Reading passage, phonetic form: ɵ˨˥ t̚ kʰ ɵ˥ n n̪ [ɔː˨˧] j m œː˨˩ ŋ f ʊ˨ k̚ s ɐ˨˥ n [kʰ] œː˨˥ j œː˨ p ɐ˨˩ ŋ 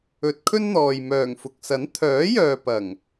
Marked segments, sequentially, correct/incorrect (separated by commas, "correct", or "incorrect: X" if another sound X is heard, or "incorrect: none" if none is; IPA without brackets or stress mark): incorrect: ɔː˨, incorrect: t̪ʰ